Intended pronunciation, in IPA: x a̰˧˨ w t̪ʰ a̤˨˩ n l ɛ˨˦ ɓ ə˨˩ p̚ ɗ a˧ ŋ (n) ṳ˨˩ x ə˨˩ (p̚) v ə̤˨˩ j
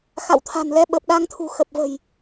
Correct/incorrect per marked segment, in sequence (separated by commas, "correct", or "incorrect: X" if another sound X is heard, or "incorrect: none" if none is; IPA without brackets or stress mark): incorrect: t̪ʰ, correct